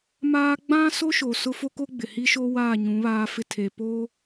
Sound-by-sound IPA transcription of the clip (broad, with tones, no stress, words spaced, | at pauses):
maː˦ ɡ͡bã˦so˦ ʃo˨sʊ˦ fo˦ko˦ ɡ͡bɪ˨ hi˦ʃo˦waː˦˨ ɲũ˨˦βaː˦fɪ˦ tʰe˨poː˦